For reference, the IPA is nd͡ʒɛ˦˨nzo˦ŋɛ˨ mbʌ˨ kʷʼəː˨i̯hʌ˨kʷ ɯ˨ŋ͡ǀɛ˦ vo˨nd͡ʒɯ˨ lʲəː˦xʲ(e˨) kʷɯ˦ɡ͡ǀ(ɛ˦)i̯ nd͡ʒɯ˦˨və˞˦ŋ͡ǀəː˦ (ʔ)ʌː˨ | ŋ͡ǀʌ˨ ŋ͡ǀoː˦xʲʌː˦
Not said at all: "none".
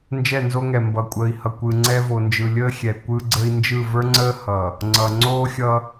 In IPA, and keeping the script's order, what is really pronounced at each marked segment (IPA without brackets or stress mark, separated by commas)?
ɛ˨, ə˦, h